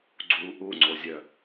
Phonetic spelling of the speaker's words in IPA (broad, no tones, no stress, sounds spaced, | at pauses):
ɡ͡ǀ u ʔ u ŋ͡ǀ o zʲ œ